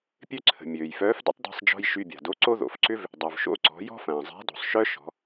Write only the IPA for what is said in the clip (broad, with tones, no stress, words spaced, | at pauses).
pʲø˥ǀʰə̤˩ mʲøː˩jfœː˧˥f də̰˧˥tˤda̤˧sˤd͡ʒɔ̤˧j ʃy˧bʲa̤˩ do˧˥ǀo˥ðo̰˩˧fǀʏ˥v | dˤœ˩vʃo̰˧˥ǀɔ̤˩˧ jɔ̤˥fɐ̃ː˩zˤa̤˧˥do̤˩sˤ ʃœ˥ ʃɔ̤˩˧